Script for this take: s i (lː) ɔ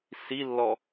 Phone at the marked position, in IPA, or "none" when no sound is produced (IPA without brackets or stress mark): lː